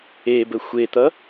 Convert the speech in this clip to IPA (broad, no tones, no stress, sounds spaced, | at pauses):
e b ə xʷ e t̪ ʌ